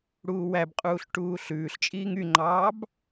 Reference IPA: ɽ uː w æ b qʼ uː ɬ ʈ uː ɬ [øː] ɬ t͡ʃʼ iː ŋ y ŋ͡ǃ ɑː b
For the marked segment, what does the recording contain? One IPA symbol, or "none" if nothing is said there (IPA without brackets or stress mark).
ʉː